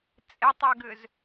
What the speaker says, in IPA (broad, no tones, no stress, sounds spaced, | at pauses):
t͡sʼ e tˤ ɛ ɡ ʏ z